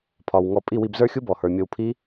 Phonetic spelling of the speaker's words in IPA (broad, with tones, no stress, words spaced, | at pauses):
pʰɒ˨wŋɔ˧ pʼi˦˨wi˧bzə˞˦xʲu˦ bɔ˨hə˞˨mʲo˧wpʰi˦